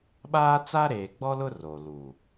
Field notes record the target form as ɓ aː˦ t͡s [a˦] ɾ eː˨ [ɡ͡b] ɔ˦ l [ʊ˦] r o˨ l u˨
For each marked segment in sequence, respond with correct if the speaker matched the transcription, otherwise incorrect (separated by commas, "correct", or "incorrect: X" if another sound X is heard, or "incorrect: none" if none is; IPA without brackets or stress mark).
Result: correct, correct, correct